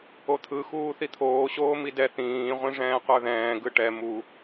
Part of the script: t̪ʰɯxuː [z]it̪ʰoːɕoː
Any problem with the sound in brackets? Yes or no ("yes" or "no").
yes